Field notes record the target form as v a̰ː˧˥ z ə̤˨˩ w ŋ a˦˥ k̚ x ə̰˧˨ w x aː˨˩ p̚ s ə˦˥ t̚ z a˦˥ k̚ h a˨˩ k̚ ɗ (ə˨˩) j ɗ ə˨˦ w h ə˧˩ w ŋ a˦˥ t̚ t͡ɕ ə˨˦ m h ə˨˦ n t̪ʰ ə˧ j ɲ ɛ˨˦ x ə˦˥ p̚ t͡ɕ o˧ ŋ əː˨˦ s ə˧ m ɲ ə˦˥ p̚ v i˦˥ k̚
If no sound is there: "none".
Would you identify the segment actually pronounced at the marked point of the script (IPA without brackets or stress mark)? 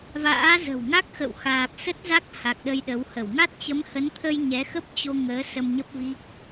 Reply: ə˧